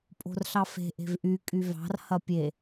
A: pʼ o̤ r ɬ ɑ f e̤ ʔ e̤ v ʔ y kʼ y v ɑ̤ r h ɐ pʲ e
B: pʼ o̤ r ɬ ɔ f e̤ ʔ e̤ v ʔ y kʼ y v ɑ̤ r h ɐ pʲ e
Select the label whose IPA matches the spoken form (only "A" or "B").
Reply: A